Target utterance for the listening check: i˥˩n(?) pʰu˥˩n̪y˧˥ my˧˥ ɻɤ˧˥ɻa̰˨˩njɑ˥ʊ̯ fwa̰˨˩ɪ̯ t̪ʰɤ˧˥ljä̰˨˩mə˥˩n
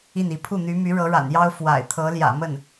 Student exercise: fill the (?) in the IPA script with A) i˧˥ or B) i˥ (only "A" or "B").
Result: A